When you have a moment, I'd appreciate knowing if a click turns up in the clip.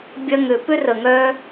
no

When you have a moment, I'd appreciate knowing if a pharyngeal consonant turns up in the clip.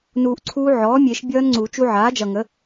yes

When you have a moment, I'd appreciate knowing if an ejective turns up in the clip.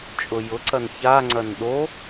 yes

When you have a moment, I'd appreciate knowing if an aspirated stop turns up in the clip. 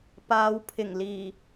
yes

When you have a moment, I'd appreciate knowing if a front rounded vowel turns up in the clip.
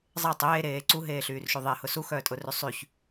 yes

